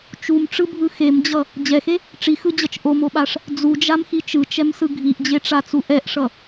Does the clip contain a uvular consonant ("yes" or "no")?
no